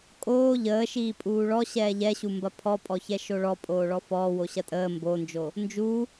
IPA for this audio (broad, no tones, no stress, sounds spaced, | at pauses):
kʼ oː ʎ əː ʃ iː pʼ uː ɭ ɔ ɕ ɛː ʎ ɛ ɕ u m b ɐ pʰ ɔ pʼ ɔ ç ɛ ʃ o ɭ ɔ pʼ oː ɭ ɔ f ɔː w o ɕ ɐ tʼ əː m b o n d͡ʒ o | n d͡ʒ u